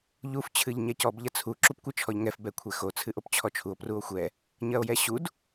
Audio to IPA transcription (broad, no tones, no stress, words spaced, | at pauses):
ʎuf t͡ɕʰɨʎɲɛcɔb ʎɐt͡sʰu ǁupkʷɨt͡ʃʰɔʎŋɛf bɛkʷʰɛxo t͡sʰɨʔopt͡ɕʰɔt͡ʃʰuo̯ pruo̯xʷɛ | ɲɐo̯jɛɕud